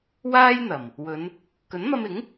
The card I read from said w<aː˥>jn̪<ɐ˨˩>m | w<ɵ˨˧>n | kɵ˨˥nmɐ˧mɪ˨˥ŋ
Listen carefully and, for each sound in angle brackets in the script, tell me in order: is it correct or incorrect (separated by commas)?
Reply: correct, correct, correct